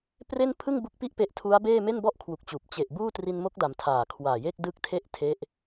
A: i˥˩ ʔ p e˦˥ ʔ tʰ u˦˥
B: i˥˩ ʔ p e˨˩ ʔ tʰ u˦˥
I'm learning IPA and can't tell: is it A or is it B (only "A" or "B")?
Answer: A